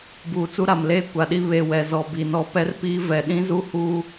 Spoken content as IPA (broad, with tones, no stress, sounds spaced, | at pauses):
b uː˨ t͡s u˦ ɾ a˨ m l eː˦ kʷ a˨ ɗ i˦ β e˦˨ w ɛ˨ z ɔ˨ b i˨ n ɔ˨ p ɛ˦ r p i˦ v ɛ˨ ɗ ĩ˦ z u˦ h uː˦